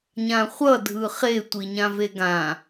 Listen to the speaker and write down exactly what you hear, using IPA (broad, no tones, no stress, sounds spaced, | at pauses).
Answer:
ɲ ã χʷ ʌ dʱ ɯ χ e tʷ i ɲ ã v e ɡ ã